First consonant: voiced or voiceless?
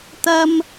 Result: voiceless